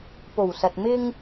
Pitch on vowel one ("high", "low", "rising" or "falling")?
low